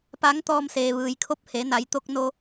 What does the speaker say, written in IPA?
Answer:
pa˧˥ŋt̪ɔː˧mseː˩ ʋɯː˩jkʰo˧˥p̚ he˩˧na˩˧j t̪o˧k̚no˧

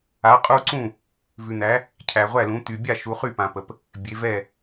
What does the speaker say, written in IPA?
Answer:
a˨˦qʼu˦ǀũ˥˨ | vʉ˨n̪æ˨˦ | cʰæ˨ʁʷæ˥˨lũ˨˦ t̪y˨bʲa˥˨ ʃu˨˦χy˥˨pã˨pə˨p | bʲe˨˦vɛ˥˨

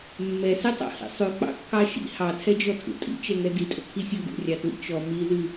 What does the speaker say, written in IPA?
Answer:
mːɛsitˤṵhḭ sˤʉk͡pɑ̰kːɑ ʃḭ hɑtʰɛd͡ʒɔtʰṵ tʼḭt͡ʃɛŋɛ ditʼɵkʰisʲɔ ɡṵrʲɑtwḭ t͡ʃɔ miðʉ

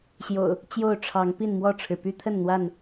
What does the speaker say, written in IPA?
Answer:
ɕjo̰˨˩ʊ̯ | t͡ɕjo˥˨ʊ̯ʈ͡ʂʰɑ˨˦ŋ pi˥˨nmwɔ˥˨ʈ͡ʂʰɻ̩˩ py˦t̪ʰə˥˨nn̪wa˥˨n

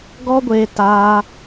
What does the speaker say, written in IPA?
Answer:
ɡɔ˦ɡʷe˧taː˧

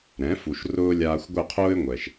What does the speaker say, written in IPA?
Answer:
ɾɛ̃˩˥ fu˩ʃrʊː˧ lʲaː˧xʷɡʷɛ˥˩qʰʊː˥ɪ̯ ŋʷɛ˩ʃ

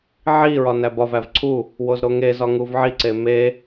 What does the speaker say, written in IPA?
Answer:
ʕiɹɒ næbɒvæv ǀʰu | wozɾoŋezɒ ŋuvʕiǀe me

